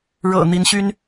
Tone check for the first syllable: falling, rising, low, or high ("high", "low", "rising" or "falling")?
low